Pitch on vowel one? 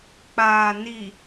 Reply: low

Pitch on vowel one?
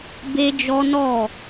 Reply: high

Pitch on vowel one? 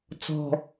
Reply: low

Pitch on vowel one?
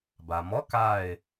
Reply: low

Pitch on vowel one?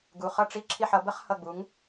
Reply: low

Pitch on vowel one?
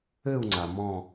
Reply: falling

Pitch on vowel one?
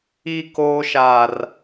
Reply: high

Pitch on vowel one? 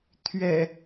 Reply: low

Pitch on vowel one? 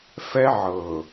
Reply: high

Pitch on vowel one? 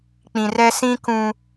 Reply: low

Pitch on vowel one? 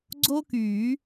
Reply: high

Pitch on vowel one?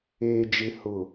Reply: low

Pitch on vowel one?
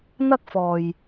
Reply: high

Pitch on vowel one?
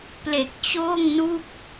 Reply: low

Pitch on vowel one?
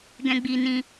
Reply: high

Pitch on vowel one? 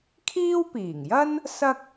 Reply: high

